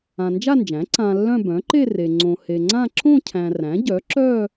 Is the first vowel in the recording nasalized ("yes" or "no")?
yes